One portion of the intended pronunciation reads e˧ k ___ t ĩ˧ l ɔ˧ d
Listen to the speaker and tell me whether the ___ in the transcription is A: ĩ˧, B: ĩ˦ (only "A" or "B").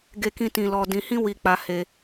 A